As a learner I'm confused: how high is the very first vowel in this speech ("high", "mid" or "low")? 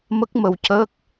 mid